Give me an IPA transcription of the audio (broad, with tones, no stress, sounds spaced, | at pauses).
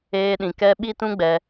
eː˦ ɗ ĩ˧ k ɛ˦ ɓ i˦ t ũ˦ ɡ͡b ɛ˧